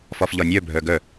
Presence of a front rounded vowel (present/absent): present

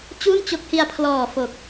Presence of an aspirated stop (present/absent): present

